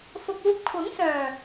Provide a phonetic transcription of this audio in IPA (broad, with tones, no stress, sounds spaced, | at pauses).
f ʊ˨ k̚ uː˧ p̚ kʷʰ ɐ˨˥ ŋ s œː˨˩